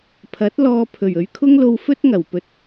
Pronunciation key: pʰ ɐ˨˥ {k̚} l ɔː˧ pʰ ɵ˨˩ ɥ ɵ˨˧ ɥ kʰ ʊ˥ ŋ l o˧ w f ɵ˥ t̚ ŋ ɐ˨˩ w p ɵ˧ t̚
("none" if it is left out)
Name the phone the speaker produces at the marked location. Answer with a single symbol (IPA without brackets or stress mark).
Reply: t̚